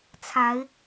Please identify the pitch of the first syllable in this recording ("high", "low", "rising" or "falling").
rising